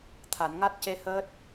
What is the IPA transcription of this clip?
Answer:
t̪ʰ a˨˩˨ n ŋ a˦˥ t̚ c e˧ h əː˦˥ t̚

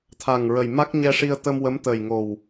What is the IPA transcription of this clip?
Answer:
t̪ʰ a˨˩ ŋ ɹ ə˨˩ j m a˦˥ k̚ ɲ ɛ˧ ʂ i˧ ə̯ t̪ ə˧ m w ə˧˥ m t̪ ə˨˩ j ŋ o˨˩ w

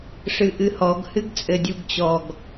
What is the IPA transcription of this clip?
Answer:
ʂ ɨ ʔ ɨ h ɔ ɡ h ɨ ɡ t͡sʼ ɘ dʲ u ɡ t͡ɕ ɔ ɡ

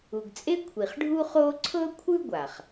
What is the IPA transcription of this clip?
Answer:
u˩ ɡ t͡sʼ e˥ kʷʰ i˩ χ ɖʱ u˥ χ oː˥ ǀʰ ɤ˥ kʷʰ ɯ˥ ɡʷ a˩ χ

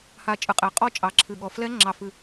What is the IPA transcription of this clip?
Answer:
h a˨˩ t͡ʃʼ ɨ˩˥ qʼ e˩˥ qʼ ɔ˥˧ t͡ʃʼ ɑ˩˥ ǁʰ ɨ˨˩ ɠ ɔ˨˩ f l ɛ˦˥ ŋ͡ǁ ɑ˨˩ f ɨ˨˩

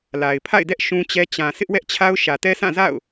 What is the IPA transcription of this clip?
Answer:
l a˨ ɪ̯ pʰ a̰˦˨ ɪ̯ d ɛ˦ ʔ ʃ ũ˦ t͡ɕ ɛ˦ t͡ɕ ã˨ s ɪ˦ ʔ w ɛ˦ ʔ t͡ɕʰ a˦ ʊ̯ ʃ ä˨ t ɛ˦ s ã˦˨ z a̰˦˨ ʊ̯

